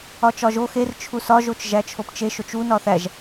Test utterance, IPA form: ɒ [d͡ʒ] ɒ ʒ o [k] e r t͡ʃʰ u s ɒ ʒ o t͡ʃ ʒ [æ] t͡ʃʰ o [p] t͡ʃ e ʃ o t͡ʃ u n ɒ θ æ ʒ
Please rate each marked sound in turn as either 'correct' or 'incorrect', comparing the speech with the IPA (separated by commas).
incorrect, incorrect, correct, correct